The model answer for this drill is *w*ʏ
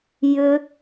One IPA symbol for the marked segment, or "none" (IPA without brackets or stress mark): j